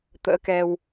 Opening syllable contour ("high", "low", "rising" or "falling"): rising